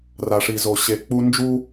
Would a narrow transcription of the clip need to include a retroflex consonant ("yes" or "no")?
yes